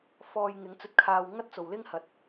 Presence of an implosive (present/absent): absent